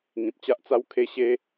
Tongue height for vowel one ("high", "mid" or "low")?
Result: high